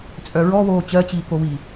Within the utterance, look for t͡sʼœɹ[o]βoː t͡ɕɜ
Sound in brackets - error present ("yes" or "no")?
yes